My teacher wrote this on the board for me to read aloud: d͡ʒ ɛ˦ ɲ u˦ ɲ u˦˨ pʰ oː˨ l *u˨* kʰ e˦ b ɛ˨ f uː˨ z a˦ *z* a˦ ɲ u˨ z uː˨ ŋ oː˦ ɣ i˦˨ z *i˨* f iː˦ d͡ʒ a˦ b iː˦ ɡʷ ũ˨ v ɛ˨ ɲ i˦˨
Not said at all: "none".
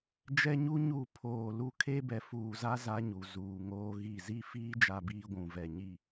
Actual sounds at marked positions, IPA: u˦˨, z, i˦

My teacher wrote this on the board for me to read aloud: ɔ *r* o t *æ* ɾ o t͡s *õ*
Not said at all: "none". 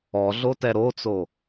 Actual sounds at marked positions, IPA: ɮ, ɛ, o

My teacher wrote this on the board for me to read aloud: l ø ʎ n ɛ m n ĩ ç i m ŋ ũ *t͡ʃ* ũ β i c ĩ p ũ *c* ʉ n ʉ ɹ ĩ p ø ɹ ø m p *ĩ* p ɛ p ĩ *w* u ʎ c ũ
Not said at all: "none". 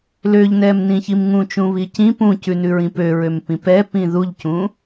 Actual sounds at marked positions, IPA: t͡ʃ, c, ĩ, ð

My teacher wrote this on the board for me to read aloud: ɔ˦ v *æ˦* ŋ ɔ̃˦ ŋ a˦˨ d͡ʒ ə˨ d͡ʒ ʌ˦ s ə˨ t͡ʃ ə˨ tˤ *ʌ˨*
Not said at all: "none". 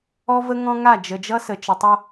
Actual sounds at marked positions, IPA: ə˦, ʌ˦

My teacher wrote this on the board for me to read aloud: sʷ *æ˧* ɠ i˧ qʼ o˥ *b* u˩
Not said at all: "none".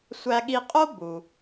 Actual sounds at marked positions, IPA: æ˧, b

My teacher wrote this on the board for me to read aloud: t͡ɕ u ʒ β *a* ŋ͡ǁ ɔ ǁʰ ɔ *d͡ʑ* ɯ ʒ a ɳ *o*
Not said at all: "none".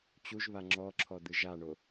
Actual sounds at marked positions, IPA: a, d̪, o

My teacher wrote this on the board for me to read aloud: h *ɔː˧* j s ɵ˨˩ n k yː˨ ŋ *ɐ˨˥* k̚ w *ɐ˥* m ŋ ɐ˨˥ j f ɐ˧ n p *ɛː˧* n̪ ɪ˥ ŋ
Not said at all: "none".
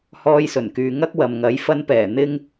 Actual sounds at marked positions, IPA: ɔː˧, ɐ˥, ɐ˨, ɛː˨˩

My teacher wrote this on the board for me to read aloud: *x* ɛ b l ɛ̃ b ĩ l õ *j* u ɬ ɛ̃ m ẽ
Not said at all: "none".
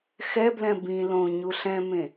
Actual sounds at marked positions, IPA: x, ɲ

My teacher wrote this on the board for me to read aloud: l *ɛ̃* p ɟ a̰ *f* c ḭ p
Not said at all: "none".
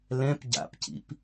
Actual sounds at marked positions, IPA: ɛ̃, p

